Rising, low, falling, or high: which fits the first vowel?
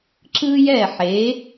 high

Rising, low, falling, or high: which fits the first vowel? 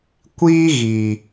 high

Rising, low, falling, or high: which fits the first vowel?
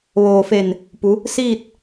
low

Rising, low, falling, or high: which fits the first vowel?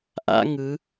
high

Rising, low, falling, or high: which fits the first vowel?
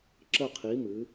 falling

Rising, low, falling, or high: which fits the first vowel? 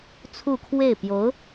falling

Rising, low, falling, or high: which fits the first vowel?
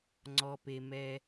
low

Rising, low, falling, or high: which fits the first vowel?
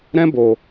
high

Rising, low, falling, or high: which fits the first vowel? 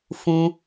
high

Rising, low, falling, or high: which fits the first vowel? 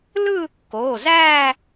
falling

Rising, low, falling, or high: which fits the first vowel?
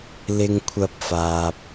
high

